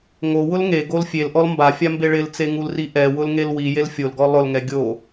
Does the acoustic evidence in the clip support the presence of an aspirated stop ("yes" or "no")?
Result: no